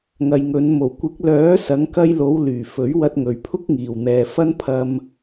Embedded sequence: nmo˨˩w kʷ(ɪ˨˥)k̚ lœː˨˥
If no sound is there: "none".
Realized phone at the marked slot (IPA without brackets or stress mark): ɪ˨˥